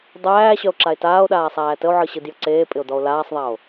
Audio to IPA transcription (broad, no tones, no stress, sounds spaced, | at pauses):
dˤ æː ɕ œ o̯ ǁ a e̯ t aː o̯ ɗ aː sˤ æː t ə o̯ ʕ ɯ ɕ ɯ d j ə ǀ eː pʼ ɪ o̯ d ɔ o̯ l aː sˤ ðˤ æ o̯